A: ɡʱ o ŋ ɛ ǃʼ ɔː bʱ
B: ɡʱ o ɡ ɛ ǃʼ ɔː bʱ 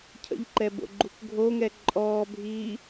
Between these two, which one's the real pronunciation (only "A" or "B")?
A